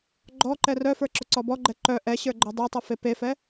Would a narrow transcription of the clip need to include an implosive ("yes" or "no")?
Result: no